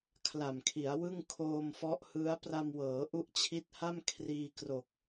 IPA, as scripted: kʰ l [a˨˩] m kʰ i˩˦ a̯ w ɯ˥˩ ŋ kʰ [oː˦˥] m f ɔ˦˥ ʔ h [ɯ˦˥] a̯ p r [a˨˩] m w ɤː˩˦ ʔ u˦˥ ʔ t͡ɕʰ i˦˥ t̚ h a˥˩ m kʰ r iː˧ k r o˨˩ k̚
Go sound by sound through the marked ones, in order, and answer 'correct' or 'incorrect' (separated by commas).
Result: correct, incorrect, correct, incorrect